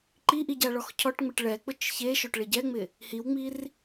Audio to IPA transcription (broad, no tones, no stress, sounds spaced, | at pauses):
ǃ i ʔ i ɟ a ɭ ɔ x cʰ ɔ ʈ ŋ͡m ɪ ʈ ɭ ɛ k͡p ʊ t͡ʃ ç e ʃ o ʈ ɭ e ɟ ɛ ŋ͡m ɪ | h i w ŋ͡m i r